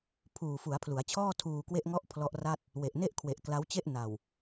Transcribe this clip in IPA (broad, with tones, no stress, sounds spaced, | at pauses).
pʰ uː˨˩ f u˩˦ a̯ pʰ l u˩˦ a̯ t͡ɕʰ ɔː˥˩ tʰ uː˧ k w e˥˩ ʔ ŋ ɔ˥˩ ʔ pʰ l ɔ˦˥ ʔ r a˥˩ t̚ | w e˨˩ ʔ n e˥˩ ʔ kʰ w e˨˩ ʔ k l a˦˥ w t͡ɕ e˥˩ ʔ n a˨˩ w